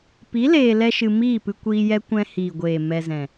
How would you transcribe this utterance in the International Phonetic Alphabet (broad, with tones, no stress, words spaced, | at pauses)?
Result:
pi˨˦ leː˧lɛ˦ʃɨ˧ miː˦˨pɨ˧kʷiː˧ jɛ˦ kʷɛ̃˧hiː˨ɡʷeː˨ mɛ˧zɛ̃˨